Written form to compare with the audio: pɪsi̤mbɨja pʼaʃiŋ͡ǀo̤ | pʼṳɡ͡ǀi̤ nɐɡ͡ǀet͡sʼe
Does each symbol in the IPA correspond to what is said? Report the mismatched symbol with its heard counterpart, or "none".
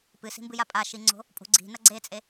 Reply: ɪ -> ɨ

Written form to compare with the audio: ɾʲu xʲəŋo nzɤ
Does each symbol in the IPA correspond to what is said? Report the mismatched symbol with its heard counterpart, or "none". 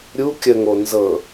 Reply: xʲ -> kʲ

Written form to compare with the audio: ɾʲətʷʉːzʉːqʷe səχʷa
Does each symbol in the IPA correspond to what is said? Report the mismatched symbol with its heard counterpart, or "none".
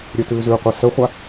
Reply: tʷ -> t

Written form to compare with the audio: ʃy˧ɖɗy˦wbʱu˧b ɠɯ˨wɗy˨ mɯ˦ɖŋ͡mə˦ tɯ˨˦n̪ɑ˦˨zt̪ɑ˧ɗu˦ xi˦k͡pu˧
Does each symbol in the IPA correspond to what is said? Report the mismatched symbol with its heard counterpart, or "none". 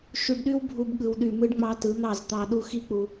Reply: ə˦ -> ɑ˦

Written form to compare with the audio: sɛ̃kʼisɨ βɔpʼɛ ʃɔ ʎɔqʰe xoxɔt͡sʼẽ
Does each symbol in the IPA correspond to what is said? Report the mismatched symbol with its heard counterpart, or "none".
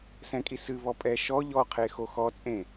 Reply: none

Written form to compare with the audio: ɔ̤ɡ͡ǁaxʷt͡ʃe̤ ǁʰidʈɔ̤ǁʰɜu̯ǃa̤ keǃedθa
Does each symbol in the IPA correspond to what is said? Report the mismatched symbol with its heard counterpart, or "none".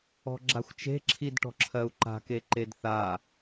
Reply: none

